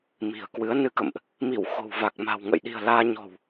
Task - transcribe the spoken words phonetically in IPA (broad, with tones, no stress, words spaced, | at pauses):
mi̤˨˩ə̯kwɨ˨˦ə̯nɨ˧kə̰˧˨mʔ | mi˧˩w xo̤˨˩wva˨˩k̚ma̤˨˩w ŋə̰˧˨jɗi̤˨˩ə̯ laː˧ɲɔ̤˨˩w